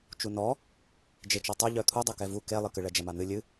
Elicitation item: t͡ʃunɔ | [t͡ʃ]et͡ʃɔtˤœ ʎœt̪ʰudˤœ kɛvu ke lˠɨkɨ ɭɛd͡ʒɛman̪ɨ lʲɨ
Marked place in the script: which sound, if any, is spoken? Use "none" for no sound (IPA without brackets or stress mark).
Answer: d͡ʒ